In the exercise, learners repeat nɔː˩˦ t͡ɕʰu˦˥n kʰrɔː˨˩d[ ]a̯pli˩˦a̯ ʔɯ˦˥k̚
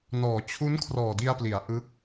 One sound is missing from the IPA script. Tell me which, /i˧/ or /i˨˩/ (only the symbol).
i˧